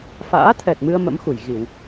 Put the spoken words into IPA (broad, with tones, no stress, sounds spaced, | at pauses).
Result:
f a̰ː˧˥ t̪ʰ ɛ˨˩ t̚ m ɨ˧ ə̯ m ə̰˧˥ m x u˧˩ j ɣ i˧˩˨ w